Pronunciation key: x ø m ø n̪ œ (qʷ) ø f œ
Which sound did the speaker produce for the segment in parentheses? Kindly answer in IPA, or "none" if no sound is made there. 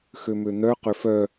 q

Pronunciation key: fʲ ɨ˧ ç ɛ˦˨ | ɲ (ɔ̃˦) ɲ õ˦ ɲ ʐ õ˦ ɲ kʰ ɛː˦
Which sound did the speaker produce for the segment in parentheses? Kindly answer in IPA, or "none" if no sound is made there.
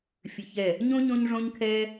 õ˦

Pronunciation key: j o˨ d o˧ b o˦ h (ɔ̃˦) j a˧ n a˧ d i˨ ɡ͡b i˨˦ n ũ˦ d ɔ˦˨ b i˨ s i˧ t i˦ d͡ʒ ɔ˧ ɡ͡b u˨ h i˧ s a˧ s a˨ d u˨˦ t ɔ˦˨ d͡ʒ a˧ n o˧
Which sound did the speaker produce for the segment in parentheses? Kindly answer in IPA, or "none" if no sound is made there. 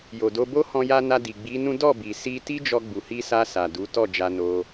ɔ̃˧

